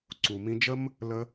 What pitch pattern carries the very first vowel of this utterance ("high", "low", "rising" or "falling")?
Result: low